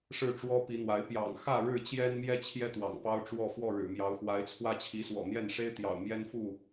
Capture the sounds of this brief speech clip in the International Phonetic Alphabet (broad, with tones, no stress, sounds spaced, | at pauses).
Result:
ʂ ɻ̩˥˨ ʈ͡ʂ w ɔ˦ p i˨˦ n̪ w a˨˦ ɪ̯ p j ɑ̰˨˩ ŋ x ä˥˨ ɻ ɻ̩˥˨ t͡ɕ j ɛ˦ n m j ɛ˦ t͡ɕʰ j ɛ˦ t̪ w ɑ̰˨˩ ŋ p ɑ˦ ʊ̯ ʈ͡ʂ w ɔ˥˨ f w ɔ˥˨ ɻ ɻ̩˨˩ m j ɑ˨˦ ʊ̯ x w a˨˦ ɪ̯ t͡sʰ w ä˦ t͡ɕʰ i˨˦ s w ɔ̰˨˩ n̪ j ɛ˥˨ n ʂ e˦ ɪ̯ t̪ j ɑ̰˨˩ ʊ̯ m j ɛ˦ n f u˥˨